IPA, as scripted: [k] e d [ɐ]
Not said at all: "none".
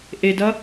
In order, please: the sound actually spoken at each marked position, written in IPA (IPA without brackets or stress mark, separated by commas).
ʔ, ɐ